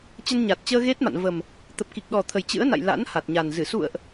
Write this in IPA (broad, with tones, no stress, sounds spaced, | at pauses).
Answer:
t͡ɕ ə˧ n ɲ a˨˩ t̚ t͡ɕ əː˧ ɣ e˦˥ t̚ m a̰˧˨ n v ə˨˩ m | t̪ ə˨˩ p̚ k i˨˩ k̚ ɗ ɔ˨˩ t̪ʰ ə˨˩ j t͡ɕ ɨ̰˧˥ ə̯ n a̰˧˨ j l a̰˧˥ n h a˨˩ t̚ ɲ a˨˩ n z ɨ˧˩ s ṵ˧˨ ə̯ ʔ